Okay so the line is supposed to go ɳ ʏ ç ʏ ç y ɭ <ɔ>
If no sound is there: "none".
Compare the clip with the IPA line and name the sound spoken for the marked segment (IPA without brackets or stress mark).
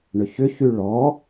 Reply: ɔ